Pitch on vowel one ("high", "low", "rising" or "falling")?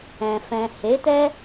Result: low